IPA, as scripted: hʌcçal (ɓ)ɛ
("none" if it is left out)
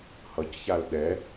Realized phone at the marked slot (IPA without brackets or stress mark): ɗ